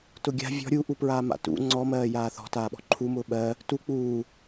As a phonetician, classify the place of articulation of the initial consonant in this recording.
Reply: alveolar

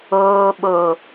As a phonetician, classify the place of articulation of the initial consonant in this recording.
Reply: labial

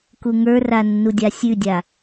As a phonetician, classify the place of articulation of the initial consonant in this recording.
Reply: velar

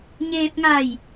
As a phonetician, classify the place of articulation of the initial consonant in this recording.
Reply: palatal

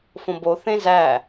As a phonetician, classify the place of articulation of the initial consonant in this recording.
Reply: labial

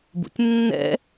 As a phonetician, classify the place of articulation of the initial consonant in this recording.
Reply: labial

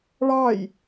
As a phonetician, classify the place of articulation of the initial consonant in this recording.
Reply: retroflex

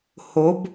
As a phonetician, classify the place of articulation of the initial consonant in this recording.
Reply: glottal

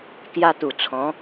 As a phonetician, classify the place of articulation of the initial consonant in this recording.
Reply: velar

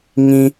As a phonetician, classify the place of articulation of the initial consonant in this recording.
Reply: velar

